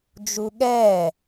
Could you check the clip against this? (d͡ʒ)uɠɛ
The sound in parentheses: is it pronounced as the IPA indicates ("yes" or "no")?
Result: yes